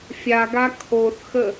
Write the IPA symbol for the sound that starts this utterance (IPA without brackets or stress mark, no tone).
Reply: fʲ